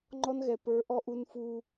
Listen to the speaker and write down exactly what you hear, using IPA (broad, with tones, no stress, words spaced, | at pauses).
ŋ͡ǃɔ˦nɣɛ˨ pə˞˨˦ ʔɔ˦ʔu˦nfu˦